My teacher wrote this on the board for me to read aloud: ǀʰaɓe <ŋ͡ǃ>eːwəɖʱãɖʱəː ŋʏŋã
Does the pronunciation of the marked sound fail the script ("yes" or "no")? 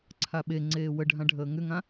yes